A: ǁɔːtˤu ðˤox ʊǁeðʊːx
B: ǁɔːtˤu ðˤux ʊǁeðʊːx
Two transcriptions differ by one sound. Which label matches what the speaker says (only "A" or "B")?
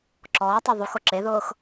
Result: B